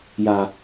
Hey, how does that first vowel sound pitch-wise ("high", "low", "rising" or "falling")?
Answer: low